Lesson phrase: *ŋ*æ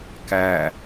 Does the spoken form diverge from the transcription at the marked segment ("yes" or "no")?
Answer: yes